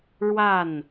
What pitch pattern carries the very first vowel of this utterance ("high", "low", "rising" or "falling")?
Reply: falling